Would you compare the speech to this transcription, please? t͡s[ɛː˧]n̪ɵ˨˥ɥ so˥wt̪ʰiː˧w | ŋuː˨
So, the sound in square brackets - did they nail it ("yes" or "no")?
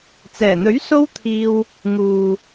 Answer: no